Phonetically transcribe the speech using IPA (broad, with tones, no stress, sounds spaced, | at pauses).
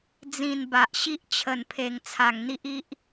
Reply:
d͡z ĩ˨˩ n b a˨ ʔ ɕ i˦ ʔ t͡ɕʰ ə˨˩ n pʰ e˨˩ ŋ t͡sʰ a˨˩ ŋ n̪ i˦ ʔ i˦ ʔ